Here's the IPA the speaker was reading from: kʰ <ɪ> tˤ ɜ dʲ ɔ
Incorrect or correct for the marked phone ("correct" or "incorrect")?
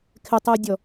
correct